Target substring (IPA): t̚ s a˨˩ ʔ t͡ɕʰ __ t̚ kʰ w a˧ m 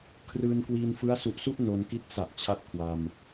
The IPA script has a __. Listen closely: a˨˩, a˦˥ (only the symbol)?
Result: a˦˥